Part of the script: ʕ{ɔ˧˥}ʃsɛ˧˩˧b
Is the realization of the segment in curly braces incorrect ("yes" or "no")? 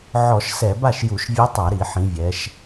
yes